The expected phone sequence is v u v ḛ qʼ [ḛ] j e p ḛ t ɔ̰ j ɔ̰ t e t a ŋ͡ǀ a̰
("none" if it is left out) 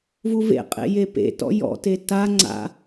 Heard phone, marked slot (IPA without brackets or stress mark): ḛ